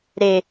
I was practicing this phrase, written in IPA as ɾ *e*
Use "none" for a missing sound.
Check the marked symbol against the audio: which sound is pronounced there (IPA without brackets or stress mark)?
e